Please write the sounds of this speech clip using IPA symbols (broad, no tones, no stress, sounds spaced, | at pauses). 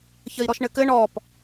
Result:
ç ə i̯ ɾ ɔ ʃ ɳ ɘ k ɘ ɳ ɔ p